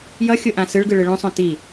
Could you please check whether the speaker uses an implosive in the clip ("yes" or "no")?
no